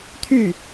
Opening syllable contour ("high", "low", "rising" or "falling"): falling